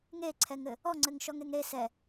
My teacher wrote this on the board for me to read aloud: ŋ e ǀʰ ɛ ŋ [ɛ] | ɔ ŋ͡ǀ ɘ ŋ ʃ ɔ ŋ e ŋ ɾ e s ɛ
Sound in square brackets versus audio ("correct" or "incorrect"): incorrect